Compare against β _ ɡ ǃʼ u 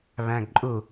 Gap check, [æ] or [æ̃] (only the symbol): æ̃